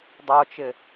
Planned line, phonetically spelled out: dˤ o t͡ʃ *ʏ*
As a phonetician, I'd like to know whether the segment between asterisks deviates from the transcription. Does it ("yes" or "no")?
yes